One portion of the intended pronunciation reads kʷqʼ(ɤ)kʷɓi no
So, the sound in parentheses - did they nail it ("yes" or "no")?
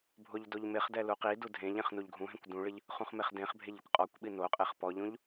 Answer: no